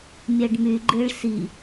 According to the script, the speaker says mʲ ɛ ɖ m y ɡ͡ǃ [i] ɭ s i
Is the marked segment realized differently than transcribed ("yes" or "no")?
yes